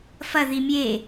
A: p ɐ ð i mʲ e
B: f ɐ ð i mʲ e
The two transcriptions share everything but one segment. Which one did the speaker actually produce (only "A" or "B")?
B